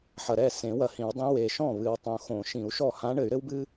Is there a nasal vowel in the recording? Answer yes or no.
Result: yes